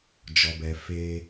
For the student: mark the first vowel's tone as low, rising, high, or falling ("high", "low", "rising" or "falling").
low